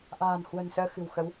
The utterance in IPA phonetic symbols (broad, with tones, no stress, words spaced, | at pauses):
ʔa̤ː˨˩n hwə̤˨˩nsəː˧ xɨ̤˨˩wxə˨˦w